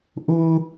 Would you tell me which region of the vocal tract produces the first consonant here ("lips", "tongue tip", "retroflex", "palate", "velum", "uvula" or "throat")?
throat